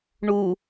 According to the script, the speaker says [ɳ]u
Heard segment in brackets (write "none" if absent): ɳ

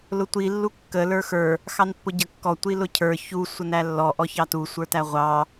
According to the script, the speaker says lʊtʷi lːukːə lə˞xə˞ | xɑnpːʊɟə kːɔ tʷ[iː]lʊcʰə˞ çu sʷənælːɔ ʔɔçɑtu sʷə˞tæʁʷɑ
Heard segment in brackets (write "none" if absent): i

